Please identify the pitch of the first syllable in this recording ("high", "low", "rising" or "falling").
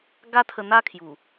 high